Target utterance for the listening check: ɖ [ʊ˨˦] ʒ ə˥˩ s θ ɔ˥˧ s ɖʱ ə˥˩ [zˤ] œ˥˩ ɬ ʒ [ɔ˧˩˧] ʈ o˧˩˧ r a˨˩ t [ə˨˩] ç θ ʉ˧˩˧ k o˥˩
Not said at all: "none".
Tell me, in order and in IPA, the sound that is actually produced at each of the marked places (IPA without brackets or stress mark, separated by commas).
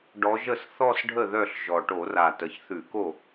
ɔ˨˦, ð, ɔ˨˩, ə˨˩